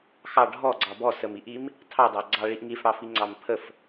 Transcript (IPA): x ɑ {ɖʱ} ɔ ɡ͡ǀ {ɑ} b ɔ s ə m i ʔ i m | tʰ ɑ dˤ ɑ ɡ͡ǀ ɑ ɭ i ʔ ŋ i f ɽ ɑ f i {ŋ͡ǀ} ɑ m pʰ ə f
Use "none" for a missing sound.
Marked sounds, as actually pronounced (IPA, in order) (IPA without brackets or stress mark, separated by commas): ɖʱ, ɑ, ŋ͡ǀ